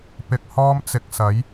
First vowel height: high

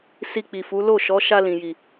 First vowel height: high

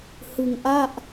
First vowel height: high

